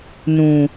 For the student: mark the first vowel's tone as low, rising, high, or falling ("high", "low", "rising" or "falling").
low